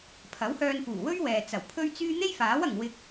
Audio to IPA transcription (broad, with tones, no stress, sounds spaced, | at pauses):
pʰ ɐ˨˥ w h œː˧ n f uː˨˩ w ɵ˥ ɥ w ɛː˨ t͡s ɐ˨˩ w pʰ ɵ˥ ɥ t͡s yː˥ n̪ e˥ j f aː˨˥ w ɐ˨ ŋ w ɪ˧ k̚